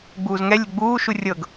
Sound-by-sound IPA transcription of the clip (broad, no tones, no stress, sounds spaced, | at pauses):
ɡ͡b uː z ŋ ɛ lʲ ə ɡ͡b uː ʃ u rʲ ɤ ɡ